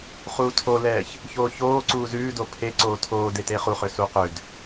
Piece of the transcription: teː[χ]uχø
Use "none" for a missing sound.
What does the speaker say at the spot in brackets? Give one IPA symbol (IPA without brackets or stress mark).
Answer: χ